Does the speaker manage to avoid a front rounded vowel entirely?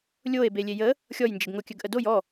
no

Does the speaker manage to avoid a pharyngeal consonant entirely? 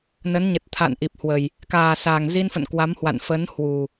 yes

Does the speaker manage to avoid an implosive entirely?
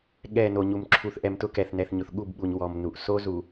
no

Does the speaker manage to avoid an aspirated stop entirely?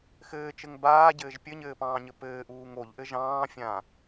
yes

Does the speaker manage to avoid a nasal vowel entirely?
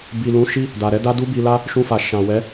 no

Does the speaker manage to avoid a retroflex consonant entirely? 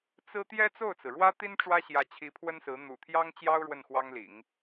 no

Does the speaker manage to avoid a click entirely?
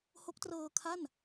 yes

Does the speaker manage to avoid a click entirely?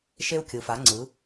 no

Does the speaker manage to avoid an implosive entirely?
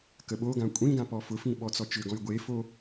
no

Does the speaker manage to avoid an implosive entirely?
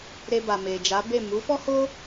yes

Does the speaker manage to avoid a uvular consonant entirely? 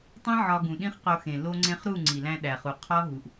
no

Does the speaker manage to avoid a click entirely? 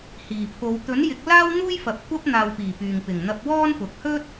yes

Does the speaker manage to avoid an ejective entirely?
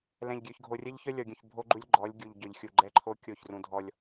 yes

